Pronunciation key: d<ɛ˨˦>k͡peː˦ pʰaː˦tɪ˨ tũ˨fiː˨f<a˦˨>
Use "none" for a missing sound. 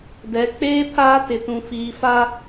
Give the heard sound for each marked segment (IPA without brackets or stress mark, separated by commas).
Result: ɛ˨˦, a˦